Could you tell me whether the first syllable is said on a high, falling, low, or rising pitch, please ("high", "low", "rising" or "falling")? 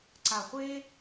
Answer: low